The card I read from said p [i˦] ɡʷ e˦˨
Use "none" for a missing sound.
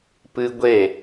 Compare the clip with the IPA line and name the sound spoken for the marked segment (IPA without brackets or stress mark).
ɨ˦